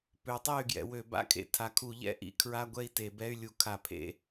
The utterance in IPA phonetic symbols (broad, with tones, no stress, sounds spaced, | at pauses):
p ø˩˥ tˤ e˥˨ y̯ ɡ j ɛ̰˩˧ w ø˧˩˧ b a̰˦˥ kʰ ḛ˩˥ tʰ a˩˧ kʰ u˧˩˧ ʎ ɛ̰˦˥ ʔ ḭ˧˩˧ kʰ ɹ a˧˥˧ ɡʷ ɛ˥˨ i̯ t e˧˩˧ b ɛ˧˥˧ y̯ lʲ u˧˩˧ kʰ a˧˩˧ pʰ ḛ˧˥˧